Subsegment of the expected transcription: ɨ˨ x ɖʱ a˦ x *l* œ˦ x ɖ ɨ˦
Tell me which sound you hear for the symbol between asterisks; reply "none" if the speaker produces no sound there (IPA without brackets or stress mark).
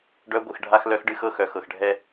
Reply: l